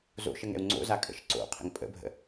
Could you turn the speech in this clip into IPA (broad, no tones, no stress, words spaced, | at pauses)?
zo̰ ʃəŋɛ̰u̯ŋ͡ǀo̰za kʼə̰ʃǀo̰qʰə̰ŋ pʼə̰bʱə̰